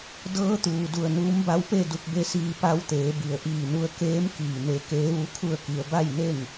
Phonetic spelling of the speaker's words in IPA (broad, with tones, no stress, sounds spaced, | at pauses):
d ɤː˧˥ t̪ uː˩ d u˧˩ ə̯ n uː˧˥ m b a˧˥ w p e˥˨ d u˧ k̚ b e˧˥ s iː˧ p a˧ w t̪ eː˩˧ b i˩ ə̯ ʔ iː˧˩ n u˧ ə̯ k eː˧˥ m k iː˧˩ n e˧ k eː˧˥ ʋ u˧˥ kʰ u˥˨ ə̯ k i˧ ə̯ b a˥˨ j n e˥˨ ŋ